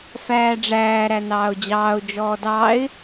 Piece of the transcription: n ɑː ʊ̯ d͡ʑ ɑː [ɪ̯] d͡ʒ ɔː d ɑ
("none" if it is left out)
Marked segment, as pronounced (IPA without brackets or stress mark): ʊ̯